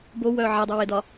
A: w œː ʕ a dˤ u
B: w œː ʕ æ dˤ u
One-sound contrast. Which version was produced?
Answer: B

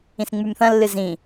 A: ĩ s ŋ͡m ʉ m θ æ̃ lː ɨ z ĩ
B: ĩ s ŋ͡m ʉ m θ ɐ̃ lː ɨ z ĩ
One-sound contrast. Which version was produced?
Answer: B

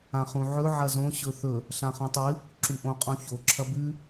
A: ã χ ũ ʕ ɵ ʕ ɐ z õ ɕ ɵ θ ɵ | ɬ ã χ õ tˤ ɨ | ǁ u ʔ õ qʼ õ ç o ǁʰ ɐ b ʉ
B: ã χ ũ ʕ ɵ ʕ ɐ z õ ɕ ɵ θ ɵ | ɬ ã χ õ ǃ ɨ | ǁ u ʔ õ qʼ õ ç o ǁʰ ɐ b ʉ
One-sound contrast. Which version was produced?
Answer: A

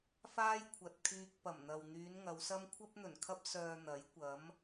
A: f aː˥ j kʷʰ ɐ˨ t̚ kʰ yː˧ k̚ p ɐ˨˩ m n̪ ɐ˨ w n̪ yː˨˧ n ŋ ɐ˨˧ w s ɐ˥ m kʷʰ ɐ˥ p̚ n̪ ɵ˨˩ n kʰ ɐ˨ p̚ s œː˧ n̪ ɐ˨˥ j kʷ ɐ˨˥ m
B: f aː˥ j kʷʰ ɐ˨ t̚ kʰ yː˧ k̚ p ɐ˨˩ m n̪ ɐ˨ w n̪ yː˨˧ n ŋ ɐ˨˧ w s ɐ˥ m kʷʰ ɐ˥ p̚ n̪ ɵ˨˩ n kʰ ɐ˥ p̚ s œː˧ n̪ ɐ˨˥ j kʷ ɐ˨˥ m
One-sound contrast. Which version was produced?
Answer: B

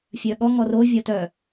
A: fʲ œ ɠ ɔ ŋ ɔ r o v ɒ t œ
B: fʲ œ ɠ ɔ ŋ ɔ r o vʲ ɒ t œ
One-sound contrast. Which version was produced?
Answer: B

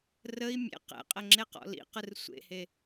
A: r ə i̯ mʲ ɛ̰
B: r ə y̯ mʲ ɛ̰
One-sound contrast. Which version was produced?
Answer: A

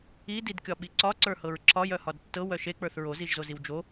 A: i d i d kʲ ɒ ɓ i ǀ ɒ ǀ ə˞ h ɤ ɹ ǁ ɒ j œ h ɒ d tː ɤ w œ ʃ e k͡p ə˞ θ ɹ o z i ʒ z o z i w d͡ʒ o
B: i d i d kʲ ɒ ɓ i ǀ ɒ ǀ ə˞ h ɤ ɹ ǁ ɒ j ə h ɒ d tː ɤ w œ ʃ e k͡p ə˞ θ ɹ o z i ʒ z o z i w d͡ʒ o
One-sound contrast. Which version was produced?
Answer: A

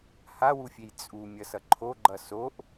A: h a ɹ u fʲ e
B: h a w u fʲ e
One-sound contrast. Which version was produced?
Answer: B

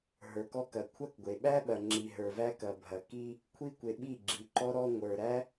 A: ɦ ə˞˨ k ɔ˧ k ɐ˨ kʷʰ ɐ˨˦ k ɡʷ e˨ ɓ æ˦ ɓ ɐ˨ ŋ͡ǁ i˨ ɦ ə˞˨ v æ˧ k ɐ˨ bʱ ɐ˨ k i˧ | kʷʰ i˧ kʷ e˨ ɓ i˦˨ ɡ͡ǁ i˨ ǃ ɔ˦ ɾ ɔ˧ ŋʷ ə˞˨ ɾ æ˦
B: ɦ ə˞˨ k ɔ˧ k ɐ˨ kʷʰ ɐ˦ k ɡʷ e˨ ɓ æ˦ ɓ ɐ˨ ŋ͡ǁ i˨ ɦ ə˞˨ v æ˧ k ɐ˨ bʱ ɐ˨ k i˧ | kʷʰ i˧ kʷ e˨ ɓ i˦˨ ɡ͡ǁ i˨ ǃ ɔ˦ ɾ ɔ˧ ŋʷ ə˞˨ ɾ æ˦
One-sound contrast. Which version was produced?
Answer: B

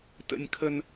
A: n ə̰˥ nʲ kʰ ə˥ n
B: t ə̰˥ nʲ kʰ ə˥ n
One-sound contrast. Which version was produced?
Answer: B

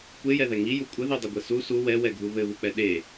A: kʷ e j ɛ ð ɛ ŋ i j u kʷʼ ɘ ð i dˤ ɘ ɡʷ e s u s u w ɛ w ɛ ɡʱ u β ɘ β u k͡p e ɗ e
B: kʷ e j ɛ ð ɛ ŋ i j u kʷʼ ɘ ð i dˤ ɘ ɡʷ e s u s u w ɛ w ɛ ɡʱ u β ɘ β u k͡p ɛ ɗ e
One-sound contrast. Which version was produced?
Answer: B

